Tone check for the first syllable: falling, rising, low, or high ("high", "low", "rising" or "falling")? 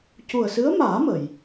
low